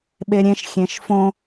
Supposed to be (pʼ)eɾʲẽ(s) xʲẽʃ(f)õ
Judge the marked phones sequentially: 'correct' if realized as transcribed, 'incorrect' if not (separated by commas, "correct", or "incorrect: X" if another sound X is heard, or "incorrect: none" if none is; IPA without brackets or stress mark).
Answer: incorrect: ɓ, incorrect: ʃ, correct